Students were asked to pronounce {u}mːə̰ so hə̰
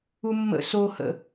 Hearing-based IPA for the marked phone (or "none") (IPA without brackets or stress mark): u